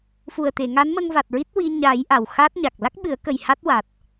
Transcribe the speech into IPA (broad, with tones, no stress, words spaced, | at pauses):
fu˨˩ə̯t̪e˨˩˨ ŋa˧˥nmə˧ŋva˨˩t̚ɹi˦˥t̚ wi˧ ɲa˨˩˦j ʔa˨˩wxa˦˥t̚ɲa˨˩k̚ la˦˥k̚ɓɨ˨˩˦ə̯kə˨˩j ha˦˥t̚wa˨˩t̚